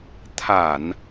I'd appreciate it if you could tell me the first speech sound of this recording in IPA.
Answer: t̪ʰ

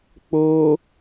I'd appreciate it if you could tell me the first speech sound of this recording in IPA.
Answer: k͡p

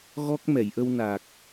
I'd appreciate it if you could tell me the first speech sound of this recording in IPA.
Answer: ɣ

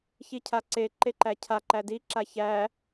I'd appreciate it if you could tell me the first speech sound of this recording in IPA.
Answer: ç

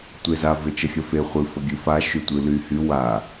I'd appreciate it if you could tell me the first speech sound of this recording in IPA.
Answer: tʷ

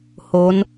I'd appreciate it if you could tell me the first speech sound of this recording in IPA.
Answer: h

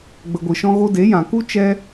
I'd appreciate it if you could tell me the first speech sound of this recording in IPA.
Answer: ɡ͡b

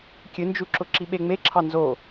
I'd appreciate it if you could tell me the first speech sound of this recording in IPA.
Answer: kʲ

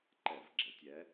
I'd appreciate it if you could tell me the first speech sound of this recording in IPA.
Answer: ǃ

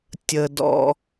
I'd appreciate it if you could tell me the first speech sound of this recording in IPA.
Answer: tʲ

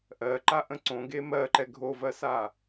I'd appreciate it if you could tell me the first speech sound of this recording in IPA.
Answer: ʔ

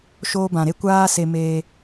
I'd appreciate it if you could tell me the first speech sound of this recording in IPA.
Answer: ʃ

